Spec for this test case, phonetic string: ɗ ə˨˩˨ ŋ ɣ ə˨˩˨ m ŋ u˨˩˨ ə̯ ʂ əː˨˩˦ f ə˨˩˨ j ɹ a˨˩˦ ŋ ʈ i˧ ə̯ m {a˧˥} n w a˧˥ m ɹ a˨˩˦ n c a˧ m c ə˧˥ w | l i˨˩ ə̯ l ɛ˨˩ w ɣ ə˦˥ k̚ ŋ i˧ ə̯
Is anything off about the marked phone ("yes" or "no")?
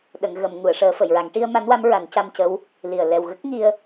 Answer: no